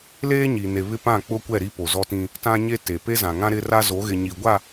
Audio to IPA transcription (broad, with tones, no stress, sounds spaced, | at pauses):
l eː˦ ɲ i˨ n e˨ β ɪ˦ p ã˦˨ k͡p ʊ˦ kʷ ɛ˦˨ ɾ i˦ p o˨ z ɔ˦ t ĩ˦ | t ã˦ ɲ e˦ t e˨ p e˦ z ã˨ ŋ ã˦ ɾ ɪ˦ r a˦ z o˨˦ ɣ ɪ˨ ɲ i˨ ɡʷ a˦˨